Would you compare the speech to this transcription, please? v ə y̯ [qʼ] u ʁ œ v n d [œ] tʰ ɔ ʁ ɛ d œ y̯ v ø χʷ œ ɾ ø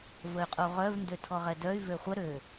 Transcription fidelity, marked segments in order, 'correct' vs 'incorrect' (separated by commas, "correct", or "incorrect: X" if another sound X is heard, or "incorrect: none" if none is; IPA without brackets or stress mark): correct, incorrect: ø